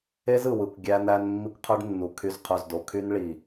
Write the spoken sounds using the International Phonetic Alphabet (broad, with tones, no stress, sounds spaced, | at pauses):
e˦ z ɯ˨ w ɯ˨ kʷ ɡʲ æ˦ n æ˦ n mː i˦ kʷ qʰ ø˦ ɖ nː u˨ kʰ y˨ z qʰ ø˨ z d o˨ kʰ y˦ n ɭ i˨